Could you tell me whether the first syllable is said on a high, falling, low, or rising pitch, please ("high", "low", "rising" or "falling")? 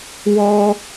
high